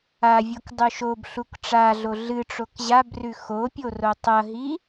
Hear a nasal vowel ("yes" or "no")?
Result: no